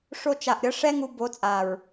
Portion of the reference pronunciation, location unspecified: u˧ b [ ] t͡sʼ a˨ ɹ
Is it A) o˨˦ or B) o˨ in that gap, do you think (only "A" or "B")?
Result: A